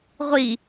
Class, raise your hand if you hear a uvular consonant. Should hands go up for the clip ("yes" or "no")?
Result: yes